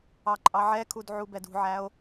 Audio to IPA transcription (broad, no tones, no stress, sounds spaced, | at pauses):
ɑ ǃʼ ɑ ʕ ɛ kʰ u d ʕ u b ɛ d ṳ ʕ æ o̯